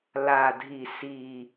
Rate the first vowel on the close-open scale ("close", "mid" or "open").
open